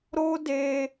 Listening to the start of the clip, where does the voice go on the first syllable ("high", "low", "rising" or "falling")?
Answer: high